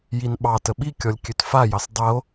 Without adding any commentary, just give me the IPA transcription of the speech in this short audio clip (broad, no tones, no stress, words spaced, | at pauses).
jinɓɑtə ɓikʲɔlʲ kʲøtfajɑs dˤəo̯